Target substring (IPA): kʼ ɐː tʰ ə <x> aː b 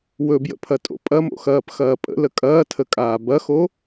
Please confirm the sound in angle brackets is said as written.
no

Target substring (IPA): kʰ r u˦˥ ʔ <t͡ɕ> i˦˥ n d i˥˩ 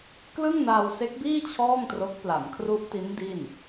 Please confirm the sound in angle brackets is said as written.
no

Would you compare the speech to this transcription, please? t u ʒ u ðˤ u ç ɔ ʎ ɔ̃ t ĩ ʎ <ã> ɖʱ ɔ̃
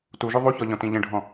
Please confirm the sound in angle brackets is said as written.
no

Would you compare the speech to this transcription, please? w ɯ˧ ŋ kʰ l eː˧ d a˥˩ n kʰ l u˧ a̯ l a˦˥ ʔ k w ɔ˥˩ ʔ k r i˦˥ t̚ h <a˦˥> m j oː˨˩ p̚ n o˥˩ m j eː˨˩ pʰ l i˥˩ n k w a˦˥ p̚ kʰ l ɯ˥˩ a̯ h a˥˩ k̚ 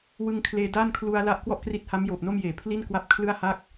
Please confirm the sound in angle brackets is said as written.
yes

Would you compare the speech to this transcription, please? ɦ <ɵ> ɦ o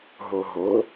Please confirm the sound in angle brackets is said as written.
no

